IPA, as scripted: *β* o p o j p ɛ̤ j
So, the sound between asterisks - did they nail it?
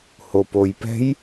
no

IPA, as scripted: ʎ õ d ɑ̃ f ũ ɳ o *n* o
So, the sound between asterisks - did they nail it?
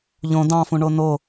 yes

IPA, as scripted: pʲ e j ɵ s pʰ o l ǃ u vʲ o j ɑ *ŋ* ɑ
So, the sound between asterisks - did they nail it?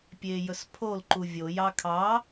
no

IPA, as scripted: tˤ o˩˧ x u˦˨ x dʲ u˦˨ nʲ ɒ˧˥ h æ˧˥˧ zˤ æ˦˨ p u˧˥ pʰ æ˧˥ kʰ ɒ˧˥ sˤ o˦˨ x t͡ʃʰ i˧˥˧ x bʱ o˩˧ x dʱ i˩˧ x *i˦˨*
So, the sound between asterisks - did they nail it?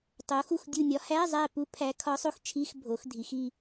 yes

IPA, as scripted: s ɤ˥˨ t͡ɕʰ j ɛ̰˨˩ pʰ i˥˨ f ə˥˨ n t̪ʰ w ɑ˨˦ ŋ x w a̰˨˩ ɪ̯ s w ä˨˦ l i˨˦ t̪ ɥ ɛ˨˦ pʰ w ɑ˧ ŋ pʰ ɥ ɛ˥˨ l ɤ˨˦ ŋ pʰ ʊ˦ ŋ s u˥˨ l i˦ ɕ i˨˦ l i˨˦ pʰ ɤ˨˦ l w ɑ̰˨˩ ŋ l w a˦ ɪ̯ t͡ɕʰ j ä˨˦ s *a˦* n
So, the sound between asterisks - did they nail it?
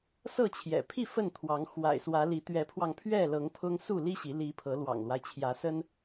no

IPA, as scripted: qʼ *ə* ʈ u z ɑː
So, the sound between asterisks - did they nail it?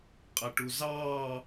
yes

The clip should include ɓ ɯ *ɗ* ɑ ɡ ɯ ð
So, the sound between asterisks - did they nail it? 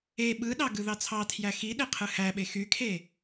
yes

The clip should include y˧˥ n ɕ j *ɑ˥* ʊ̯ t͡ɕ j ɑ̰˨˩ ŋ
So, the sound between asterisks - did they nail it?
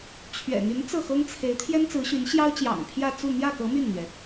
yes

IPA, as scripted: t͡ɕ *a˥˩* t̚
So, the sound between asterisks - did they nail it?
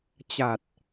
no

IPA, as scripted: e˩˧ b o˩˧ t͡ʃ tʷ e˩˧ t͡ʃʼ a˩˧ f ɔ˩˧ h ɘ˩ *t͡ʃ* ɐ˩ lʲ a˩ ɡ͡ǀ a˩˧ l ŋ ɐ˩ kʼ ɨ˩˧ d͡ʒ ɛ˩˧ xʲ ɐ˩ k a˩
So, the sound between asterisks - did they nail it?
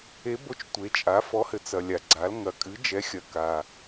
no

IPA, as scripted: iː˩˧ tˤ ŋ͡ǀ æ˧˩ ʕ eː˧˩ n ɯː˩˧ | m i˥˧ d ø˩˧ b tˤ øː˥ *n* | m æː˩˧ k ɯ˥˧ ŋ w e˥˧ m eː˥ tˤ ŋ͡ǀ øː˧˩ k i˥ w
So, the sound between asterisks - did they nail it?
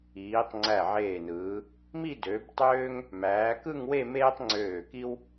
no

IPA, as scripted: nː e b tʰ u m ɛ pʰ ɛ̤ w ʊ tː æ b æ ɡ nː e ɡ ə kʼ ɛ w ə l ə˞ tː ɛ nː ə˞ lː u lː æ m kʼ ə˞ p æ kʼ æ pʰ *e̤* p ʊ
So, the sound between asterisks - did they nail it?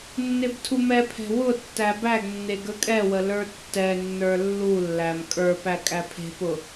yes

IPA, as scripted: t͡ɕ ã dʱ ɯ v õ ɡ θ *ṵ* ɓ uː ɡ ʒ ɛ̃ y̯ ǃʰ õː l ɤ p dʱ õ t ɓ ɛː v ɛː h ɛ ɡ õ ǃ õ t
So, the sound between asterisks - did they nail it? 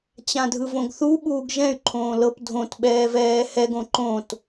no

